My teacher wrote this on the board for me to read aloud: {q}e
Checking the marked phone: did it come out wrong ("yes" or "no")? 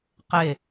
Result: no